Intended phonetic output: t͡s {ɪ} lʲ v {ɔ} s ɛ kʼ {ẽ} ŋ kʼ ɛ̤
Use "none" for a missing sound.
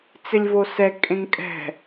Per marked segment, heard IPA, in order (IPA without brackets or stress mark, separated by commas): ɪ, o, ẽ